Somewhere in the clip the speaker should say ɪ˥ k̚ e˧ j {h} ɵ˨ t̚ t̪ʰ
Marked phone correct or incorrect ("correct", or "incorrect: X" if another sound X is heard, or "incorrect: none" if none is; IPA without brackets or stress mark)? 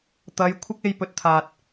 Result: incorrect: p